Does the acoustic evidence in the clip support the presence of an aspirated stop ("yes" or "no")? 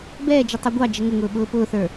no